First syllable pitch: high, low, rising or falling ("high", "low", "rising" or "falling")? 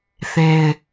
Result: high